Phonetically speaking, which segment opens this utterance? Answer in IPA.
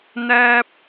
n̪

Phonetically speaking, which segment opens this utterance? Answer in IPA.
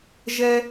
ʒ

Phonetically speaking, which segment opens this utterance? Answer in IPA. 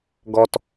ɡ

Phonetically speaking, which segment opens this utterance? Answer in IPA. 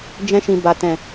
d͡ʒ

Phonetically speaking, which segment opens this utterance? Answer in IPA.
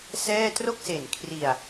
s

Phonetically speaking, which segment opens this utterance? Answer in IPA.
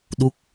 ɗ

